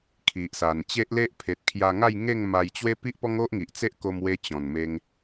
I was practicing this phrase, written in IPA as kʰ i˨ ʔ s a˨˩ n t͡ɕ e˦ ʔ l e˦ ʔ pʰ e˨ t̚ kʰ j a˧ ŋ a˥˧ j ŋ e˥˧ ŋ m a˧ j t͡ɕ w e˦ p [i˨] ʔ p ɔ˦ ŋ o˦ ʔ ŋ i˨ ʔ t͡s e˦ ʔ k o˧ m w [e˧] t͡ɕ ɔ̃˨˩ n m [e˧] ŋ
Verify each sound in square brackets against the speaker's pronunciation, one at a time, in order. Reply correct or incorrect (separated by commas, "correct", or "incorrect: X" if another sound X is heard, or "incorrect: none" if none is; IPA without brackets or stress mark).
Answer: incorrect: i˦, correct, correct